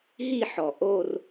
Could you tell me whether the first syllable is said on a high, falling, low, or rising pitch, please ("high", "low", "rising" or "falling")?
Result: falling